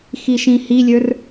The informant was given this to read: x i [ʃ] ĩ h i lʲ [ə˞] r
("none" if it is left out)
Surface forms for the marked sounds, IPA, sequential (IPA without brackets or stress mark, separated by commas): ʃ, ə˞